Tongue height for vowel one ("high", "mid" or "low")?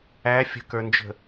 low